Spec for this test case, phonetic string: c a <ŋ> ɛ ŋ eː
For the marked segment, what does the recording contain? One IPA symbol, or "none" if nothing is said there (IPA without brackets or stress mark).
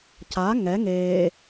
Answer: ŋ